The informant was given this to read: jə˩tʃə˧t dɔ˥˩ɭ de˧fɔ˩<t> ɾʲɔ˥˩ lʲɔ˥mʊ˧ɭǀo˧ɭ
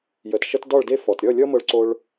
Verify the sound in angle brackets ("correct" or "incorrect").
correct